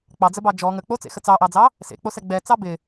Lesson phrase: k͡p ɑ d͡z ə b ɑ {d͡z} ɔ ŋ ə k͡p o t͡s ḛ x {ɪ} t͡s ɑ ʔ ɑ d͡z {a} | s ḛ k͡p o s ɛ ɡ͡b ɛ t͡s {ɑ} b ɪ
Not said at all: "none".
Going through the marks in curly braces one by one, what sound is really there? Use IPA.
d͡ʒ, ə, ɑ, ɑ

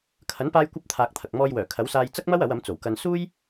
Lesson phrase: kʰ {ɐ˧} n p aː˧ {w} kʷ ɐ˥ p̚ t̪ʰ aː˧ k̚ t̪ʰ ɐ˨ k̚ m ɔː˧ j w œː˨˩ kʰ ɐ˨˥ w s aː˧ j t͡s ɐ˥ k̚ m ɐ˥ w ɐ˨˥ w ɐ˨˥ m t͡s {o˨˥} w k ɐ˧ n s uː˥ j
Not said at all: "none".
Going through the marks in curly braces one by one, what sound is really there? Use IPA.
ɐ˨˥, j, o˨˩

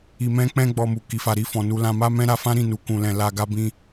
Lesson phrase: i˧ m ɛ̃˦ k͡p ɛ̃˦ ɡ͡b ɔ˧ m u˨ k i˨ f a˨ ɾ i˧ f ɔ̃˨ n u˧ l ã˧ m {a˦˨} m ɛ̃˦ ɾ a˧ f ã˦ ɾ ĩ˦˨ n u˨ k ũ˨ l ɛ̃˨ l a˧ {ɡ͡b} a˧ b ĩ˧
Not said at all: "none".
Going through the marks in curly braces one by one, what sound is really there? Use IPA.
a˦, ɡ

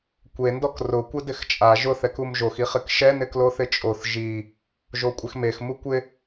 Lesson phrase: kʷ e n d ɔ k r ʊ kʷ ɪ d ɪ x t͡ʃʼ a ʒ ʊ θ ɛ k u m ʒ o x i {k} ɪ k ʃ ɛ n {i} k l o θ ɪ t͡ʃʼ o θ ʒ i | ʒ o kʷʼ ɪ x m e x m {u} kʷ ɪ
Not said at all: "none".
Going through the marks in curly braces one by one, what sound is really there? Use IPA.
χ, ɪ, u

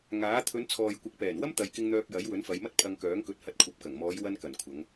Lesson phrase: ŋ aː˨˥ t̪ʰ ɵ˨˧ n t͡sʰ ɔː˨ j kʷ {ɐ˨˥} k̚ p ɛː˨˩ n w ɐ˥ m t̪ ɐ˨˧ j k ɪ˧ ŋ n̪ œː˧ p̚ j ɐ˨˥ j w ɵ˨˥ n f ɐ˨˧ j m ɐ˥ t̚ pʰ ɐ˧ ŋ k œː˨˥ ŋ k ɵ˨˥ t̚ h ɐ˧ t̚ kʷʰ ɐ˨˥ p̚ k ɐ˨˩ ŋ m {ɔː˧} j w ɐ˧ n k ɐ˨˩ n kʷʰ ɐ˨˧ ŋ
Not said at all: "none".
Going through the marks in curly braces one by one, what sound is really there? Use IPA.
ɐ˨, ɔː˨˧

